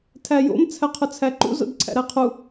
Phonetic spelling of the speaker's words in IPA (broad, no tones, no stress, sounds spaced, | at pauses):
tʰ æ j o̰ m t͡sʰ æ qʰ ʊ t͡sʰ æ ǃ ṵ z o̰ d ǀʰ æ̰ ɾ æ qʰ u